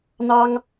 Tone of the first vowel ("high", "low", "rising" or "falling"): high